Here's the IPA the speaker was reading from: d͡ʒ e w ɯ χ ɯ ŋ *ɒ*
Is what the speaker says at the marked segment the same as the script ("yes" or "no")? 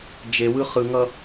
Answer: no